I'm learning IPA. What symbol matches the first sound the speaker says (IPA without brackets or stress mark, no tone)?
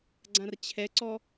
ɡ͡ǀ